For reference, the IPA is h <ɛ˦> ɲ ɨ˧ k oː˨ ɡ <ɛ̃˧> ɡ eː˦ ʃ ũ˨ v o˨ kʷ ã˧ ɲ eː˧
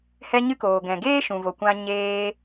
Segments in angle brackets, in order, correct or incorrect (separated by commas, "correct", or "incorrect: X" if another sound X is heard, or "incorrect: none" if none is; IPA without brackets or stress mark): incorrect: ɛ˧, incorrect: ɛ̃˨